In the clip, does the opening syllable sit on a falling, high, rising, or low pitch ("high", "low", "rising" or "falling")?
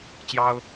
high